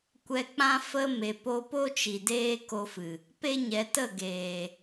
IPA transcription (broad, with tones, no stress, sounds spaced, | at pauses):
kʷ ɛ˧ k͡p ã˦ f ə˦ m e˨ p o˧ p o˦ t͡ʃ i˨ d eː˦ k o˧ f ɨ˨ | p e˦ ɲ ɛ˨˦ t ə˦˨ ɡ eː˨